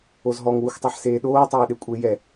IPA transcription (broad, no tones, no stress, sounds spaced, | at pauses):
o z ɦ ɔ ŋ w u xʷ tˤ ɛ ħ s eː ɗ oː tˤ eː ɗ e kʷʼ e j ɛ